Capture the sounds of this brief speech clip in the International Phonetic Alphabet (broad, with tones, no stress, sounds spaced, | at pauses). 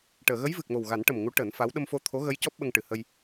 ʈ əː˨˩˨ ɣ ə˧˥ j v ɨ˨˩ k̚ m o˨˩ w ɣ a˨˩˦ n ʈ ə˨˩ m ŋ u˧˥ ʈ əː˨˩˦ n f a˧˥ w ɗ ə˧ m f o˧ t̪ʰ o˧˥ ɣ ə˧˥ j c ɔ˦˥ p̚ ɓ ə˧ ŋ ʈ ɨ˨˩˨ h ə˧ j